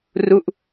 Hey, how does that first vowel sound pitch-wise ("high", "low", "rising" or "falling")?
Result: falling